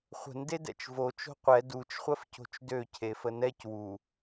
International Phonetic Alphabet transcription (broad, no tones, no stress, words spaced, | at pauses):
χʷə̤ndedɛ̰t͡ʃ vo t͡ʃo̤qʷɛ dut͡ʃχʷɜf co̤t͡ʃdøcʰe fənɛc wu